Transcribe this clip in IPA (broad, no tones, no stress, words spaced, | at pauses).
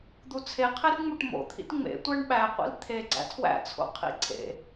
d̪ut͡sʰeqʰerŋ͡muʈ mo̰t̪ʰḭt ŋ͡mḛ tʷæɳɓæqʷḭl t̪ʰe ɡ͡ǀæ̰tʰwæ̰t͡sʰo̰ qʰḭǀʰḛ